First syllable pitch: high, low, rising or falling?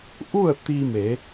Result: falling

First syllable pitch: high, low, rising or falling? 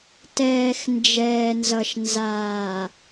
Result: low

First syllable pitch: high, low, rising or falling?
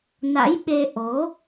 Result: rising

